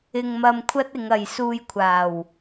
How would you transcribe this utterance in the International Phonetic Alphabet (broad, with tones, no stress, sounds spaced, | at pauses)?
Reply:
ɪ˧ ŋ m ɐ˧ m kʷʰ ɐ˥ t̚ ɪ˨˧ ŋ ɐ˨ j s uː˧ j kʷʰ aː˨˩ w